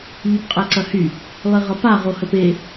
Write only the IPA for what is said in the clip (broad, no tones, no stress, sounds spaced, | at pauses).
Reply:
ʎ ʏ p qʼ ɛ ǀ ɐ h y | lˠ i ʁ ʌ p a ʁ o h ə p e